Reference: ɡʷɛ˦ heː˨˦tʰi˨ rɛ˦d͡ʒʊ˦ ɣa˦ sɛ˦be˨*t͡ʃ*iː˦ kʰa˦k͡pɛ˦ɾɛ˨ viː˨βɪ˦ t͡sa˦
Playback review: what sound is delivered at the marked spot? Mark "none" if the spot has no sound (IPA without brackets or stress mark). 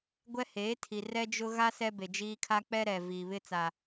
d͡ʒ